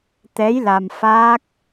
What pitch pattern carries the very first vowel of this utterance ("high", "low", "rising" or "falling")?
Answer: rising